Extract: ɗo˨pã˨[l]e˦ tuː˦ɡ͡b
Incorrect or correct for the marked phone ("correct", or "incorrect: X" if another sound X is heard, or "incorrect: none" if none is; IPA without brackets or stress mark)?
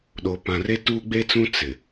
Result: incorrect: r